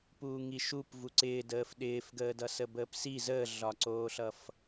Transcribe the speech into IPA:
p uː ŋ i ʃ u p v u ǀ ɪː d əː f ɗ ɪː f ɡ əː d ʌ s ə b əː p s i z əː ɮ ɒ ǀ oː ɬ ʌ f

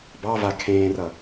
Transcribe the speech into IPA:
b ɑ v a kʰ ẽː r ʌ

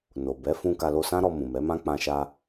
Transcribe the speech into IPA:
n o˨ b ɛ˨˦ f ũ˧ k a˧ l o˧ s ã˦ ɾ ɔ˧ m ũ˨ m ɛ˨˦ m ã˦ k͡p ã˧ ʃ a˧

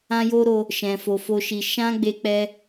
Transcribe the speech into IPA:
ã˦ j o˦ ɾ o˧ | ʃ ɛ̃˧ f o˧ f o˦ ʃ i˧ ʃ ã˦ ɡ͡b e˧ k͡p ɛ˧

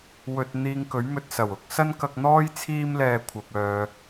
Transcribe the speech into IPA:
w ɵ˧ t̚ n̪ iː˧ ŋ k ɵ˨˥ ɥ m ɵ˧ t̚ s ɐ˨˩ w ʊ˨˥ k̚ s ɐ˥ n k ɐ˧ k̚ n̪ ɔː˥ j t͡sʰ iː˥ m l ɛː˧ kʷʰ ɐ˨ p̚ œː˨

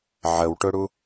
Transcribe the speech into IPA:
ʕ ə w ʈ ʊ ɽ u

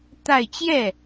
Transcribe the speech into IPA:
t̪ a˥˧ ɪ̯ t͡ɕ j ɛ˥˩

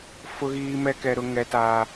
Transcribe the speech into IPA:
f ʊ˦ ɣ iː˦ m ɛ˦ k ɛ˦ ɾ ʊ˦ ŋ ɛ˦ t aː˦

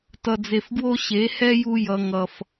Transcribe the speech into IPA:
t ʌ˧ d͡z e˧ f ɡ w o˦ ɕ e˨˦ h ɛ˦ j u˧ j ʌ˨ ŋ ʌ˨ f

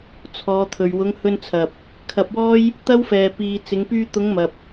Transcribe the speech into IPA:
t͡sʰ ɔː˨˧ t̪ʰ ɵ˨ ɥ w ʊ˨˧ ŋ h ɵ˧ n t͡sʰ ɐ˨ p̚ | kʰ ɐ˧ p̚ w ɔː˥ j | t̪ ɐ˥ w f ɛː˧ p iː˧ t͡s ɪ˨˧ ŋ p yː˧ t̪ ʊ˨˧ ŋ m ɐ˨ p̚

